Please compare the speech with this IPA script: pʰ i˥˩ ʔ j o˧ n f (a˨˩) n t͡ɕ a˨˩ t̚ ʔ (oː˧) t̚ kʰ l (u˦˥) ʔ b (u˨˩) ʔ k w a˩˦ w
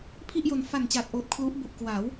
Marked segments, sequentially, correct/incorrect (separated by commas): correct, incorrect, correct, correct